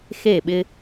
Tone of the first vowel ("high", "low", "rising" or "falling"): falling